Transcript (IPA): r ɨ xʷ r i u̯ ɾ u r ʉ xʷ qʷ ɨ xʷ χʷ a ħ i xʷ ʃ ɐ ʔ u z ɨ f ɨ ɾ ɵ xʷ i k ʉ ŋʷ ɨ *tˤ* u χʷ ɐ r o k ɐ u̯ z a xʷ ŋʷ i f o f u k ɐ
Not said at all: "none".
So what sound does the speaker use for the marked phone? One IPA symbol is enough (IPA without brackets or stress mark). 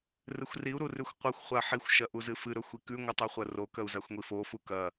tˤ